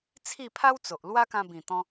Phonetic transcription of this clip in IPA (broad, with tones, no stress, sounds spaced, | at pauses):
t͡sʰ i˥˧ pʰ a˦ w t͡s o˨ ʔ l w a˦ k ã˧ b ĩ˨˩ t̪ ɔ̃˧